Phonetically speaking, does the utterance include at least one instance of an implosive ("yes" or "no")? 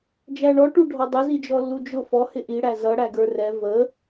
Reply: no